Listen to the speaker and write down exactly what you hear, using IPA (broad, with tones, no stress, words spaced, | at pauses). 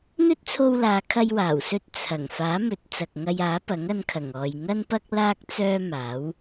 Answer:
n̪ɵ˥t̚t͡sʰo˧wlaː˨ kʰɐ˧jwaː˨˩wsɵ˧t̚ t͡sʰɐ˨˩ŋ faː˨˥mɵ˨˥t̚ t͡sɐ˨k̚ŋɐ˧jaː˨˥pɐ˨˥ŋ ɐ˧nkʰɐ˨˩ŋɔː˨j ŋɐ˥npɐ˥k̚ laː˥k̚ t͡sœː˥maː˨˥w